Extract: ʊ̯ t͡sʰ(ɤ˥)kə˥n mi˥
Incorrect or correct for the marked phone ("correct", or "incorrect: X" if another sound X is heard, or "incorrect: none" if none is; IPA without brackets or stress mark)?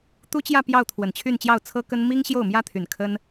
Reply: correct